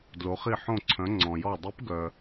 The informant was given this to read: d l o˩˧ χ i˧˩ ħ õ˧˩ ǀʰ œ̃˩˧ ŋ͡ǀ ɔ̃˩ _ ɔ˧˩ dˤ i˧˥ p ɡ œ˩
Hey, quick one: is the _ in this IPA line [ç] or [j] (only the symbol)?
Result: j